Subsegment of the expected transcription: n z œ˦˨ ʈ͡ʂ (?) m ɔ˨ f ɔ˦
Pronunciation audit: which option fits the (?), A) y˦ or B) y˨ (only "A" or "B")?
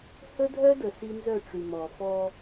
B